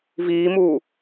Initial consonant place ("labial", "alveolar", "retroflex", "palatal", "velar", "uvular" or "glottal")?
labial